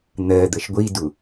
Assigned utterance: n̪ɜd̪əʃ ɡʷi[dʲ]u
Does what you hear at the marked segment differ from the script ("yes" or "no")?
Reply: yes